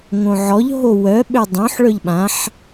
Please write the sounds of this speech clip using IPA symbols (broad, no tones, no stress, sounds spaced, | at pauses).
ŋ õ ʕ ɔ ʎ ɦ o w œ ɓ ø dˤ õ ħ ɭ œ ʎ ɓ ã ħ